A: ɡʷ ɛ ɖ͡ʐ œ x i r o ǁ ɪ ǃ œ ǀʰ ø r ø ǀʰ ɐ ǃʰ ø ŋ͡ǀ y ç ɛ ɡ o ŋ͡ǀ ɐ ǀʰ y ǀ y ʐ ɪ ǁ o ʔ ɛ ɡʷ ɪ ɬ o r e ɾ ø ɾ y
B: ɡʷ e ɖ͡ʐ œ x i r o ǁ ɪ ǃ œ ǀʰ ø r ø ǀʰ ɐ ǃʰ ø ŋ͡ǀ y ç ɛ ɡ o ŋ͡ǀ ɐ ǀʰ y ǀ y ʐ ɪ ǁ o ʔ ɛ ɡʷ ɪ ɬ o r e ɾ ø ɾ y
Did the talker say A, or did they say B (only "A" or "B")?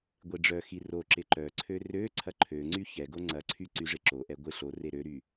B